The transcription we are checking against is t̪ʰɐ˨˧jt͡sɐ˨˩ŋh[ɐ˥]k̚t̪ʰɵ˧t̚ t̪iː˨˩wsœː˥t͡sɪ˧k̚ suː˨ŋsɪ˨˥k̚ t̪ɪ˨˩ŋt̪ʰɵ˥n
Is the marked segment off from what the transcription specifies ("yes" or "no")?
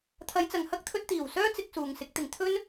no